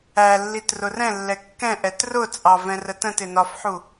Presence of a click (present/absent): absent